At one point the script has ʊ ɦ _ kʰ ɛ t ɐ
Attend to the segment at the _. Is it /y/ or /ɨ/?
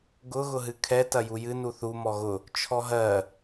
ɨ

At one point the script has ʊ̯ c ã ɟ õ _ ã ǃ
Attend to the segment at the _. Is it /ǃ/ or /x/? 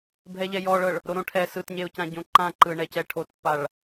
ǃ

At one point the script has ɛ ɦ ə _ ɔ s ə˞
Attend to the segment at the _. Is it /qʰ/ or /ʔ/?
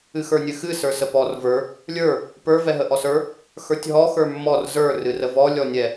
ʔ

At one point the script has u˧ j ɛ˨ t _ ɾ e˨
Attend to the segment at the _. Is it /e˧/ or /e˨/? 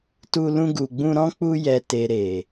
e˨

